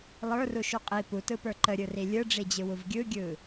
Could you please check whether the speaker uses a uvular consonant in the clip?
yes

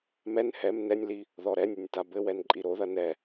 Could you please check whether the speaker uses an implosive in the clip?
no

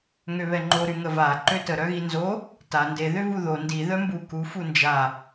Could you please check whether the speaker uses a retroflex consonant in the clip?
no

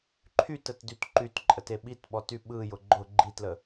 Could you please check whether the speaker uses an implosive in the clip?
yes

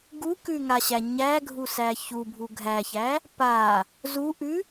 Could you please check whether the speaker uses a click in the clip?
no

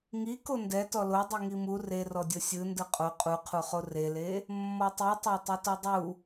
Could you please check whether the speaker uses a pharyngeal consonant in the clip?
no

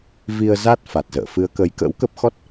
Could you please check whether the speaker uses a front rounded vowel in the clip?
no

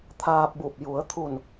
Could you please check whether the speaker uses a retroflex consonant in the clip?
no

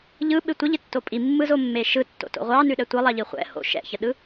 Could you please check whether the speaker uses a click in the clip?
no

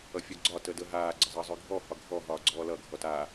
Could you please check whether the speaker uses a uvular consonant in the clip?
no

